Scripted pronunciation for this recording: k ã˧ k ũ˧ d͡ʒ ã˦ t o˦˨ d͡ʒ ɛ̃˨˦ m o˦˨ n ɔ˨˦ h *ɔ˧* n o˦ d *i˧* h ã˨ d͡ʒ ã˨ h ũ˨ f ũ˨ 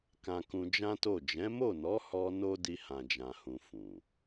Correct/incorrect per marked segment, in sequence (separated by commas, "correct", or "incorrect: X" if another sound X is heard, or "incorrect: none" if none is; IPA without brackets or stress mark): correct, correct